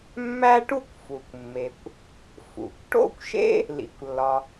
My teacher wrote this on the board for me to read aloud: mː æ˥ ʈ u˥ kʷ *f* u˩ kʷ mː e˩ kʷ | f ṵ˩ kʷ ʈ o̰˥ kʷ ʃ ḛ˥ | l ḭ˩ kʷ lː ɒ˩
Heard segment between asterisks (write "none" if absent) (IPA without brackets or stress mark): f